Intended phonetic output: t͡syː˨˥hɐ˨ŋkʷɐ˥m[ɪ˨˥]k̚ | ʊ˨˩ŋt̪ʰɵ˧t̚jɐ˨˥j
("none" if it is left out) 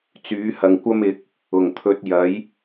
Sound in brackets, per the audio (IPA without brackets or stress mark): ɪ˨˥